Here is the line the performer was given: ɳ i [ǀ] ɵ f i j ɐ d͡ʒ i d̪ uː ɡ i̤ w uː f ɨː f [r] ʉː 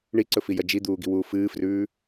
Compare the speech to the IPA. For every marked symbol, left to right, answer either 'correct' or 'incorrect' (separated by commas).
correct, correct